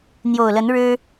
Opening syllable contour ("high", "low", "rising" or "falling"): low